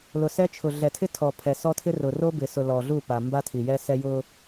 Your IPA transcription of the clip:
l ʊ˨ s ɛ˦ t͡ʃʰ ʊ˨ ɮ ɛ˨ tʰ ɪ˦ tʰ ɔ˨ pʰ ɛ˨ s ɔ˦ tʰ ɪ˦ r ʊ˨ r o˦ b ɪ˨ s ʊ˨ l ɔ˨ ɮ u˦˨ p a˨ m b a˦ tʰ i˨ j ɛ˦ s ɛ˦ j ʊ˦

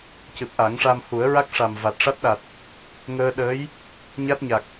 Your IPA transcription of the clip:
c ɨ˨˩ p̚ ʔ a˨˩˦ ŋ ʂ a˧ m h u˨˩˦ ə̯ ɹ a˦˥ k̚ ʂ a˨˩ m v a˨˩ t̚ ʂ a˦˥ t̚ ɗ a˨˩ t̚ | ŋ əː˧ ɗ əː˧˥ j | ɲ a˦˥ t̚ ɲ a˨˩ k̚

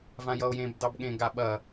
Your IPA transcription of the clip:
v ã j ʌ o̯ j ẽ b d ɑ b ɠ ẽ ɡ a ɓ ɐ

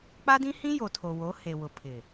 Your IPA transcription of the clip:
k͡p a˦ d ĩ˦ h ĩ˦ j o˨ tʰ o˨ w o˨˦ h e˨ w ʊ˨ pʰ ɪ˨

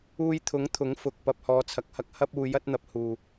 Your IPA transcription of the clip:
uː˧ j t̪ʰ ʊ˨˥ ŋ t̪ʰ ʊ˨˥ ŋ f ʊ˨ k̚ p ɐ˧ p̚ h ɔː˧ t͡sʰ ɐ˧ k̚ h ɐ˥ k̚ h ɐ˥ p̚ uː˧ j ɐ˥ t̚ n̪ ɐ˧ p̚ h uː˨

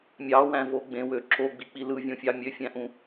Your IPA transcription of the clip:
mʲ ɑ w æ̃ v o ɡ͡b ẽ w ø ǁ o ɡ͡b i k͡p i l ɯ vʲ õ fʲ ɑ mʲ ø fʲ æ̃ ʔ ũ

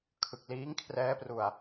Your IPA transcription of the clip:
kʰ ɯ˨˩ k̚ l iː˦˥ ŋ kʰ r ɛː˦˥ p r u˧ a̯

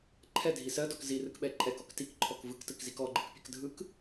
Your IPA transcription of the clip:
ǃʰ ɛ dʱ i s ɜ d ɔ k z i r ɯ k ɓ ɛ ǃʼ ɛ k ɔ k t i k ǃʰ ɔ k v ɯ k t ɯ k z i k ɔ ɡ͡ǃ ɯ k pʲ ɜ k dʱ ɯ k

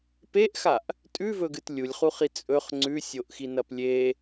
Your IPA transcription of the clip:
p e ʔ x a ʔ | tʼ ʉ v ɵ ɡ ɨ t lʲ u lʲ χ u χ i t͡sʼ ɵ χ ŋ͡ǀ ʉ sʲ o ʔ x i n ɐ p lʲ e

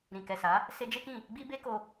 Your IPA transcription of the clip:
ɾ ĩ˨ k ɛ˨ s a˨˦ | s e˧ d͡ʒ e˦ k ĩ˦˨ | ɡ͡b i˦ b e˦ k o˧

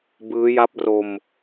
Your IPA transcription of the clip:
b ɯː˦˥ j a˦˥ p̚ r o˧ m

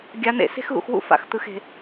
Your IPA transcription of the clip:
ɡʲ a˨˦ n̪ ḛ˨ s e̤˦ x ɣ ṵ˨ x w ṵ˦ f a̰˨ x t̪ ɯ˨ x e̤˨

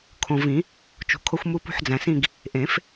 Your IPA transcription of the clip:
kʰ õ˨ v ĩ˨˩˦ | t͡ʃ ṳ˨ kʰ o˦ xʷ m u˦ p ṳ˦˨ ħ d͡z æ̃˨ s ĩ˦˨ ɡ | ʔ ẽ˨˩˦ f

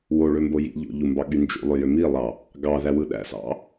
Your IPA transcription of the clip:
w o ɭ ø m b o j ḭ ʎ o̰ ʎ u m b ɑ ɠ y n d͡ʒ ṵ lˠ ø j ø m i lˠ ɑ | ɡ ɑ ð æ w ɯ ɗ æ̰ s ɑ̰

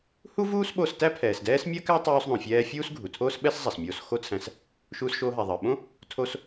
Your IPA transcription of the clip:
h u˥ v uː˥ s ɓ o˧ s t æ˥ pʰ ɛː˩ s d ɛː˥ s mʲ ɜ˥ k æ˥ tˤ uː˧ s ðˤ õ˩ fʲ ɛː˧ fʲ uː˥ s ɡʱ u˩ tʰ oː˥ s ɓ ɛ˥ s zˤ ɛ˩ s mʲ oː˧ s x o˥ t͡sʰ æ̃˧ s | ʃ uː˧ s ʃ oː˧ ɦ æ˩ ðˤ ɜ˩ ɓ õ˥ | tʰ o˧ s

